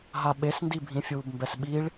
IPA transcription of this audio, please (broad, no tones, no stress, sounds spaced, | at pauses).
ɦ a ɓ e s n d i bʱ ĩ fʲ uː b m b ɛ s ɓ i ɭ